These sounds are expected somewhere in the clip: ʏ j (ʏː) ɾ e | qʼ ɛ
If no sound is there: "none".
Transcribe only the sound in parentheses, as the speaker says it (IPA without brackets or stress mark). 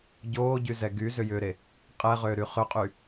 ʏː